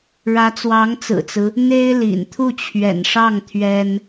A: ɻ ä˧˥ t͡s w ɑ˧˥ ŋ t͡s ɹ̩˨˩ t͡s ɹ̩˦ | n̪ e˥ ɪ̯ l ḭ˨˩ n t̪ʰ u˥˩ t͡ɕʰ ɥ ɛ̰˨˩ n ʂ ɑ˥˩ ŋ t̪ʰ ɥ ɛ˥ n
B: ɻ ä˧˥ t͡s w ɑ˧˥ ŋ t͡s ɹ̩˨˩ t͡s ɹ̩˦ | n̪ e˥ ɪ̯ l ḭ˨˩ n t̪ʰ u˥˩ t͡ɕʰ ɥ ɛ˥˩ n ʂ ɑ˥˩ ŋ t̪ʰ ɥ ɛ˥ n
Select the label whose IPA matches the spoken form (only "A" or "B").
A